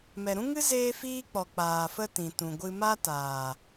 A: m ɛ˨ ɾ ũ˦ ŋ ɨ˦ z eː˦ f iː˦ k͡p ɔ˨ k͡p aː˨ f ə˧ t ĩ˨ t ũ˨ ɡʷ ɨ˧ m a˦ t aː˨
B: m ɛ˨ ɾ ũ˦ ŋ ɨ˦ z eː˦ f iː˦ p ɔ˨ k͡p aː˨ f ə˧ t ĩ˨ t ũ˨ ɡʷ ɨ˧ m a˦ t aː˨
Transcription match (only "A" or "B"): A